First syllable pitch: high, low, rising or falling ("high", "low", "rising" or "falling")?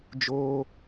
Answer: high